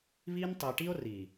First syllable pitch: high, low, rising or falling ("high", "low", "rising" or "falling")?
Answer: high